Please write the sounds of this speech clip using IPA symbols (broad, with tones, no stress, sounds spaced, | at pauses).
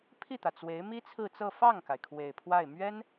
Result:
pʰ i˥˩ t̪ ä˩ t͡s w e˧˥ ɪ̯ m i˥ t͡sʰ ɹ̩˥˧ t͡s ɤ˥˧ f ɑ˥˩ ŋ k a˩ ɪ̯ kʰ w e˨˩ ɪ̯ pʰ w a˥˩ ɪ̯ m ɥ ɛ˥ n